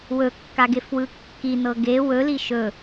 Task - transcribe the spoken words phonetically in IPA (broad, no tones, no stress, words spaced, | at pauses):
wɵkːaɡefwɯ kːinɤ ɡe wɵli ʃɵ